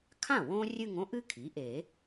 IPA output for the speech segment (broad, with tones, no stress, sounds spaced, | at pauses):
kʰ ã˥˩ w õ˥ rʲ ɨ˥˧ ŋ õ˥ ʔ ɨ˥ kʰ i˩˥ ʔ e˨˩˦